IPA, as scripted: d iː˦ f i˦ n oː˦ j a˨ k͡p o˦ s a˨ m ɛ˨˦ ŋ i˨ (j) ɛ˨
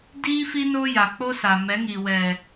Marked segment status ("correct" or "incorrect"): incorrect